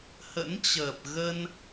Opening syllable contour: rising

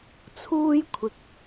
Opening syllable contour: high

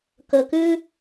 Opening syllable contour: low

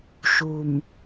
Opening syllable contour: low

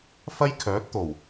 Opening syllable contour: high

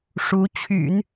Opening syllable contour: rising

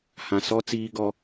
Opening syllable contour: low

